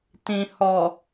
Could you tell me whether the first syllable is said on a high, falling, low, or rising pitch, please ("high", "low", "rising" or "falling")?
low